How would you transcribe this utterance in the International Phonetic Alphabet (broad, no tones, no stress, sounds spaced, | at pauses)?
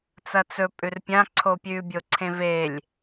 t͡s ɐ t͡s ɵ pʼ ʉ r pʲ ã ǀʰ o pʲ ʉ bʲ o ǀʰ ẽ v e lʲ